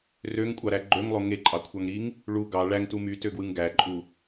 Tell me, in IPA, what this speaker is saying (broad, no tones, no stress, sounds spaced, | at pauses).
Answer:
r ø ŋ kʷʼ ɑ ɾ æ ɡ͡ǃ ø ŋ lˠ o ŋ e ǃʼ ɑ kʷʰ ɑ ŋ ɾ i ŋ | ɭ u ɡ ɑ ɭ æ ŋ t u m y t ø ɡ w ɯ ŋ ɡ æ ǃʼ u